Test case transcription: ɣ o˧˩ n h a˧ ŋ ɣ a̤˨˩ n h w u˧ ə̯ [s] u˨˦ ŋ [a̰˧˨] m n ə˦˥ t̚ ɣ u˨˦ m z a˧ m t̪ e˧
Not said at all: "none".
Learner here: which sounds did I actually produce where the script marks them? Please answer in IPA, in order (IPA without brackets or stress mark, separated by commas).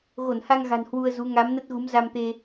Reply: z, a˨˦